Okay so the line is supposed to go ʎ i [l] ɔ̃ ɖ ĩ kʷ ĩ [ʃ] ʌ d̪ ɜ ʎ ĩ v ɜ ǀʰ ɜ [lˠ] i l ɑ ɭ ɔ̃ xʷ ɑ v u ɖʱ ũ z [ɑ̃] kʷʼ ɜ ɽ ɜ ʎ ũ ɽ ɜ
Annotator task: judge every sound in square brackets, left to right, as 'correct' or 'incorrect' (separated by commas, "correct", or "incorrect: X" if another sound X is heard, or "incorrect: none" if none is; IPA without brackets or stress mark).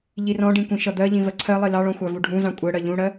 incorrect: r, correct, correct, correct